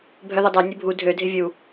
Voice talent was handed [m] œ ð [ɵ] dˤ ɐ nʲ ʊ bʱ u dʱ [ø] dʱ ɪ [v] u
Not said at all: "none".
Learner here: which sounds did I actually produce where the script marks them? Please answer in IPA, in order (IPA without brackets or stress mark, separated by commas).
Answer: bʱ, ʊ, ø, vʲ